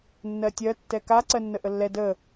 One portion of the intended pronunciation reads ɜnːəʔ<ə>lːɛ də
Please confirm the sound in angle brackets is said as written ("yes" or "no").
yes